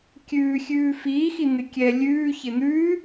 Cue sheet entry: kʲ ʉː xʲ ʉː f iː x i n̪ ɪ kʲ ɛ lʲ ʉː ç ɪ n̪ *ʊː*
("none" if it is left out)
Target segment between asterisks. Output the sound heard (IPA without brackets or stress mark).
ʉː